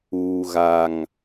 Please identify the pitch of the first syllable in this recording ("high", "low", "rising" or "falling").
low